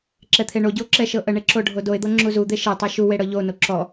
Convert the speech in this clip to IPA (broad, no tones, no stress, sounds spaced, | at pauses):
ǁ ɛ t̪ʰ e ɳ o ɟ u o̯ ǁ ɛ ʃ ɤ ʔ ə ɳ e ǁ o ɖʱ o d o e̯ d̪ ɤ ŋ͡ǁ u z u d̪ e ʃ e tˤ e ʃ u w e ɽ ɤ ʎ o n o ǁ ɔ